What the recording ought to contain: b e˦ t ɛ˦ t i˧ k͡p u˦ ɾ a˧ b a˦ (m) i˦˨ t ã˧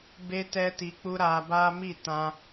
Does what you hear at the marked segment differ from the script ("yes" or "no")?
no